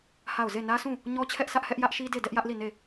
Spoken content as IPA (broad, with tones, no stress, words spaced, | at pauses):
ha˦˨ʊ̯ ze˦˨nä˦sʰũ˦˨ | ɲɔ˦t͡ɕʰɛ˦ʔsä˦ʔhɛ˦ʔ jä˦ʔʃi˦de˦˨ dɛ˦ʔjä˦ʔli˦˨ ne˦˨